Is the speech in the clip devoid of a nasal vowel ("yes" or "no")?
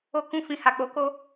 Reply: no